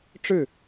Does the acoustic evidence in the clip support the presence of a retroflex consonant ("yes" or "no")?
yes